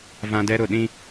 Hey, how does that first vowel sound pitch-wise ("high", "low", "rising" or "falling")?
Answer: high